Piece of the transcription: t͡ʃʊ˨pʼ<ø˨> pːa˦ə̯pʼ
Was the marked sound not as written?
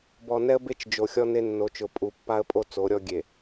yes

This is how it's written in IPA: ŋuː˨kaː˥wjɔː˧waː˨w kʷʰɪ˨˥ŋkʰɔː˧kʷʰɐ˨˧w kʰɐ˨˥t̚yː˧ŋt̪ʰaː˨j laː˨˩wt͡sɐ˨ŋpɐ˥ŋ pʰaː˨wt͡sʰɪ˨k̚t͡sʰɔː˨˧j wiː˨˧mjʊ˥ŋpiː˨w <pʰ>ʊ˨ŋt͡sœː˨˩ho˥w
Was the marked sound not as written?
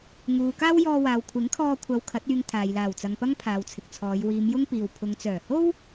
no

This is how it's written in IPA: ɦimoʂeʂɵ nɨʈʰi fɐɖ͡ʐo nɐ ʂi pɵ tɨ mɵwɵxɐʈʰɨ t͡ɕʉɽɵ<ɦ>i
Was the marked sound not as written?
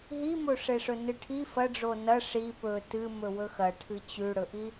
yes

